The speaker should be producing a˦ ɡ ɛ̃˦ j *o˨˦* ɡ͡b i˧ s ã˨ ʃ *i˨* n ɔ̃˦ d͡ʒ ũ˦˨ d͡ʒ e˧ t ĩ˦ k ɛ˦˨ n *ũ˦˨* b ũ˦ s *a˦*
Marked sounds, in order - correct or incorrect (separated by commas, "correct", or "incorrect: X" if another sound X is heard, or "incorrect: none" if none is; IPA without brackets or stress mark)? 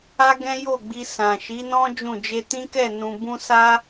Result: incorrect: o˦˨, incorrect: i˨˦, incorrect: ũ˧, correct